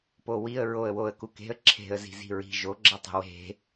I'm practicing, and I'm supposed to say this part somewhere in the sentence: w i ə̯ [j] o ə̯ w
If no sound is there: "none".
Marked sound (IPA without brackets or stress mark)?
ɹ